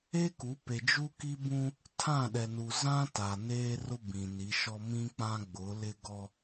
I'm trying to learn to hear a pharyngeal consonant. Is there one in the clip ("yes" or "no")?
no